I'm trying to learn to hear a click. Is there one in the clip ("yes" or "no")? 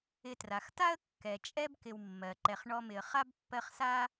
yes